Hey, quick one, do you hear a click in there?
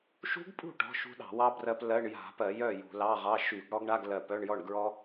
no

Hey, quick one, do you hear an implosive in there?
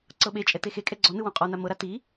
yes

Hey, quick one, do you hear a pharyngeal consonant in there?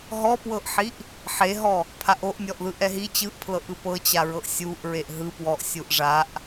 yes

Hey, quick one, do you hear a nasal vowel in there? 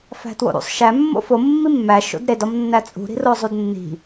no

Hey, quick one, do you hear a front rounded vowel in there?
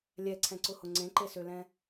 yes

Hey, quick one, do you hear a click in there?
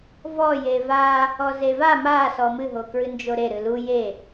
no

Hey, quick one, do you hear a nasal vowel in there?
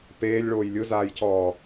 no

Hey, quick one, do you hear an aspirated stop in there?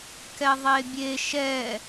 no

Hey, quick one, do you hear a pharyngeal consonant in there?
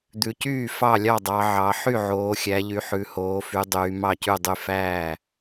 yes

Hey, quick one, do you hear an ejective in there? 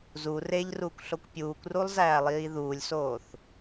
no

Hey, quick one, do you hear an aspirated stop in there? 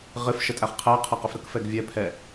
yes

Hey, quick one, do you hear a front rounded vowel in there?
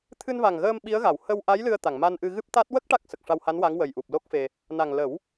no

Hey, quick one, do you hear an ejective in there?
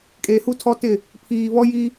yes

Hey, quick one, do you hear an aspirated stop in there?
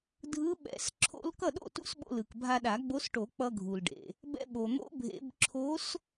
yes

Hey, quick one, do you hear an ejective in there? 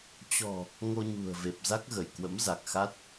no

